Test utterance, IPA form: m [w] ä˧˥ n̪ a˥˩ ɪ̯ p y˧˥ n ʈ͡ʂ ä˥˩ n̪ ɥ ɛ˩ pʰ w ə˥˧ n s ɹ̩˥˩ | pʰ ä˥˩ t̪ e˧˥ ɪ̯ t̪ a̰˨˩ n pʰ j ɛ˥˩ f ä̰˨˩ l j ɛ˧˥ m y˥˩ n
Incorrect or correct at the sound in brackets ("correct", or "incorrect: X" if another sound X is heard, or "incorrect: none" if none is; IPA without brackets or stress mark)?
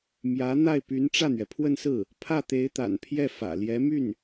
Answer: incorrect: j